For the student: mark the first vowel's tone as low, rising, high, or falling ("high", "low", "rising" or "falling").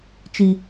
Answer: low